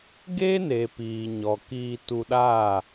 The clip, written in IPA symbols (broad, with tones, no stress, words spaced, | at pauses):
ɡe˦ne˨ piː˨ɲɔ˨ kiː˧tu˧ɗaː˦˨